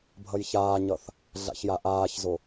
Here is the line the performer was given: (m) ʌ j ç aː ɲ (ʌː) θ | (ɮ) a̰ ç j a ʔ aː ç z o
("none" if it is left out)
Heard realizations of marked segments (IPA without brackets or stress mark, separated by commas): bʱ, ʌ, ɮ